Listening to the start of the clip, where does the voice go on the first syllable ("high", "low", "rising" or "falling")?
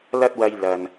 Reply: high